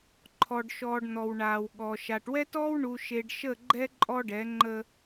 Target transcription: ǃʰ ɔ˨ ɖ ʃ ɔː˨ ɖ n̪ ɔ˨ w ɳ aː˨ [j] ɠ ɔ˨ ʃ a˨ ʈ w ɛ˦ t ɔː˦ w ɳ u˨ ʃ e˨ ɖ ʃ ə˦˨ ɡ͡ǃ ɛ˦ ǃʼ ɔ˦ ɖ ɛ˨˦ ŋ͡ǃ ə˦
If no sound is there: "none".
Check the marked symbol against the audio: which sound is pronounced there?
w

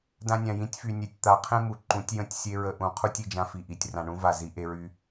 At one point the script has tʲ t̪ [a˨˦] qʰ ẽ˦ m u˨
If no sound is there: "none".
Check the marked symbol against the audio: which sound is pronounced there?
a˨˦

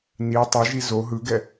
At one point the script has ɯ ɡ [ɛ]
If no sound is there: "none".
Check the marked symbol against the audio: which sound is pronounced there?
ɛ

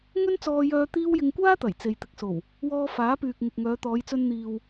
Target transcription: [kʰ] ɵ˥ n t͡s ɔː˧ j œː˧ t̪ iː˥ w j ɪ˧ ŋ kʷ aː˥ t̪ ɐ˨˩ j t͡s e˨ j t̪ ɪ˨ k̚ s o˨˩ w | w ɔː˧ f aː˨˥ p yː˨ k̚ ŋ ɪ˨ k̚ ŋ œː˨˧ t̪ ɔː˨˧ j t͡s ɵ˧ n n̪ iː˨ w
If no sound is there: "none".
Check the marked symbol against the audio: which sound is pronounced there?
ŋ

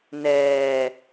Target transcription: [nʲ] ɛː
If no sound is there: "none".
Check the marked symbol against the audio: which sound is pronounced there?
n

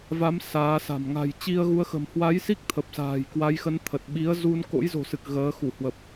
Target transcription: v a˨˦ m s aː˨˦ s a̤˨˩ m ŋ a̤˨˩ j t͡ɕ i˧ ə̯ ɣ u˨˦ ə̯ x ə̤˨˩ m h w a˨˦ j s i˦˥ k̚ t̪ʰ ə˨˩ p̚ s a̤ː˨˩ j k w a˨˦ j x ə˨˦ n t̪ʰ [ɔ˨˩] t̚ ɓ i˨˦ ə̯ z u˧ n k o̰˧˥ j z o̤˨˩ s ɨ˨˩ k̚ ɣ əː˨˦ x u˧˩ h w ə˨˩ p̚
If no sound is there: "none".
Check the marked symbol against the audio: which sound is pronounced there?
ə˨˩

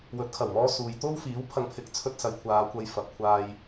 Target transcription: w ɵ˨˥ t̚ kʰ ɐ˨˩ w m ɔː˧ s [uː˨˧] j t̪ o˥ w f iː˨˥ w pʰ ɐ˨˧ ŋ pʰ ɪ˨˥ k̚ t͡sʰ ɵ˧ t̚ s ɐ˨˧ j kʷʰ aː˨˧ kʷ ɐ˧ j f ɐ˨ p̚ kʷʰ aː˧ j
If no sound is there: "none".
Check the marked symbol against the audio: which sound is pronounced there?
uː˨˧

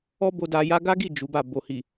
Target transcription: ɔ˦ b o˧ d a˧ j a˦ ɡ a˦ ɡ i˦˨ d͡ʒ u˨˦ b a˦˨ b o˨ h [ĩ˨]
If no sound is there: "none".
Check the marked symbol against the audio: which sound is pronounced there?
i˨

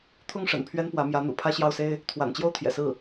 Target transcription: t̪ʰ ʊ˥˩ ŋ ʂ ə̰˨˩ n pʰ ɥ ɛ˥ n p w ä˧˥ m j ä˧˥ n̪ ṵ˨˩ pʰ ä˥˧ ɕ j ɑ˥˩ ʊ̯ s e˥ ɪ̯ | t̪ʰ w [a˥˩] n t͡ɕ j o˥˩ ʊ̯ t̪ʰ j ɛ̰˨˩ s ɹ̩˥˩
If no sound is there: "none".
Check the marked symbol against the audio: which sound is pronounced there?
a̰˨˩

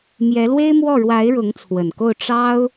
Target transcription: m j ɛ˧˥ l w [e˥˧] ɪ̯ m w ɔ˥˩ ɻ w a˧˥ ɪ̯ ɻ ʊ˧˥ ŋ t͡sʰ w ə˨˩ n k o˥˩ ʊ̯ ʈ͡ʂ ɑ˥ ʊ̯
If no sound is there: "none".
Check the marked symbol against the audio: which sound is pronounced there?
e˥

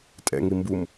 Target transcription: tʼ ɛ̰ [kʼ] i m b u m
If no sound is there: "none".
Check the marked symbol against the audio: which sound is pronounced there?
ŋ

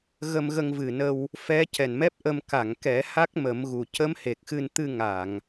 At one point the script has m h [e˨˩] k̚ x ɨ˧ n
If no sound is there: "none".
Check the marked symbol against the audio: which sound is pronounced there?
e˨˩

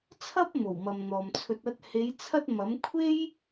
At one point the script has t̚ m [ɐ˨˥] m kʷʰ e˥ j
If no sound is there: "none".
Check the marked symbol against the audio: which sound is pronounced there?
ɐ˨˥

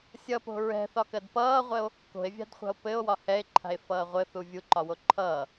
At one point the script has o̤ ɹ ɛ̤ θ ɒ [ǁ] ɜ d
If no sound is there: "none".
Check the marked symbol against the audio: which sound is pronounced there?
k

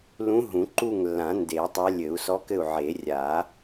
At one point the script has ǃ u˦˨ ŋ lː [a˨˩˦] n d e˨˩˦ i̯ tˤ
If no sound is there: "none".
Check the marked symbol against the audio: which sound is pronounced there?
ã˨˩˦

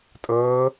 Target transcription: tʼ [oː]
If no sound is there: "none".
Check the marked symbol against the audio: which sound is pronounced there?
ɤː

